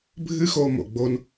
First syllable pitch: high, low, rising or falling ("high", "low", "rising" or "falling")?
high